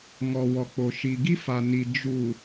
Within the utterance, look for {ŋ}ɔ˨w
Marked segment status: correct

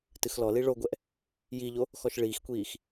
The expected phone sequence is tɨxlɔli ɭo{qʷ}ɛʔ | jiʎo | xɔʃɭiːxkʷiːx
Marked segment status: incorrect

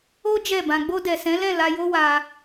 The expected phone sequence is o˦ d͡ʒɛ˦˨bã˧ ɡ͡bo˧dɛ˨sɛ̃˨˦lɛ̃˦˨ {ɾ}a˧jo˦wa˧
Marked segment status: incorrect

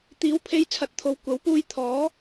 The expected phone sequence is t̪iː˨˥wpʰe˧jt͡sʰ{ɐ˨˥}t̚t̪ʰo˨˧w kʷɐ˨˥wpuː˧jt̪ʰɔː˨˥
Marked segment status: correct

